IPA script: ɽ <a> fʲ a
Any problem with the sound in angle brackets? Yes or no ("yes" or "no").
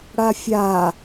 no